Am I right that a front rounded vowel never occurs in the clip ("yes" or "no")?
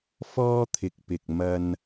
yes